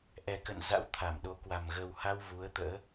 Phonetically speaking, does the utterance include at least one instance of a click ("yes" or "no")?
no